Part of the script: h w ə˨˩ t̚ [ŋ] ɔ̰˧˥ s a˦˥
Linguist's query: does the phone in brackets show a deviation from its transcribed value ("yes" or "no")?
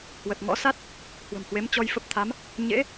no